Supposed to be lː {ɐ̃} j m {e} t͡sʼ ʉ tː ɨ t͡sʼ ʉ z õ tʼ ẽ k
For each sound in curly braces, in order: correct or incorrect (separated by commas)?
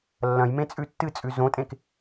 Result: correct, incorrect